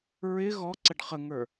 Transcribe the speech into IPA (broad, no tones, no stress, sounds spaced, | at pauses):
ɹ ɪ ɣ ɔ ǀ ə ɖ χ ə ŋ ə˞